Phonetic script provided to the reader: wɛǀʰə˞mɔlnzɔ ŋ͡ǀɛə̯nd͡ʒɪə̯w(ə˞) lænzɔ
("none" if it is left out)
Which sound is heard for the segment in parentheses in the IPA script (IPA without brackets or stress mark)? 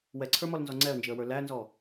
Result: ə˞